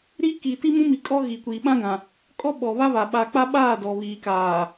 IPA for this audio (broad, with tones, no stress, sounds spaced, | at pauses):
ɾ i˦ k i˨ t i˦ m ũ˦ m i˨ kʼ ɔ˦ ɣ i˨ kʷ i˨ ɓ ã˦ ɡ ã˨ | kʼ ɔ˦ ɓ ɔ˨ β a˦ β a˨ ɓ a˨ k͡p a˦ ɓ aː˦˨ d ɔ˨ β iː˨ k aː˨